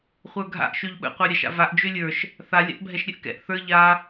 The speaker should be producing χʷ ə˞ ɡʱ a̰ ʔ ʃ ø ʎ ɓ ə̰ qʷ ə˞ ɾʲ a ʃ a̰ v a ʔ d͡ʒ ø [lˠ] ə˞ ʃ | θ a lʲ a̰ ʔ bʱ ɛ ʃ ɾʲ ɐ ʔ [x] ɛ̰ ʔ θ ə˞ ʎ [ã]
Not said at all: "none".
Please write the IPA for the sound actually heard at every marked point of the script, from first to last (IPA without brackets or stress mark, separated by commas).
lʲ, k, a